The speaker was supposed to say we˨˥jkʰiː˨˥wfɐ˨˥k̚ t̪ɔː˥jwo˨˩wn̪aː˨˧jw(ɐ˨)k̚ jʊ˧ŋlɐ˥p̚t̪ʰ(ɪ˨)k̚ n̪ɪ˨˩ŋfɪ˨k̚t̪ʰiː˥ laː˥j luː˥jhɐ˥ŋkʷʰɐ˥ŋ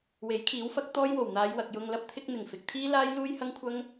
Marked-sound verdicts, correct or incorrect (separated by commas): correct, incorrect